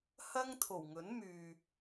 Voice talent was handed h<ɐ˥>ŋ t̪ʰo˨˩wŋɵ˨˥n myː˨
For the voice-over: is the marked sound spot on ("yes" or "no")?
yes